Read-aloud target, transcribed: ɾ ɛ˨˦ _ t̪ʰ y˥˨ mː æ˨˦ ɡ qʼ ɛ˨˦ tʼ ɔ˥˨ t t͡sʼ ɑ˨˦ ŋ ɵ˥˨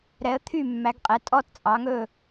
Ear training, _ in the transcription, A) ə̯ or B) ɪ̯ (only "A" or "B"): A